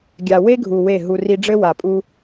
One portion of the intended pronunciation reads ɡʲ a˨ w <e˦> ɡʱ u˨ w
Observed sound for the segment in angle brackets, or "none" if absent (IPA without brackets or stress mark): e˦